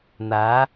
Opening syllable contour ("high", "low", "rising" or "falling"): rising